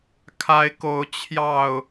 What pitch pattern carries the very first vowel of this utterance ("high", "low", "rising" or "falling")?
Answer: rising